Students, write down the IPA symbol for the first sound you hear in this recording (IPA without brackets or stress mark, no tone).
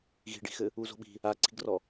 ɣ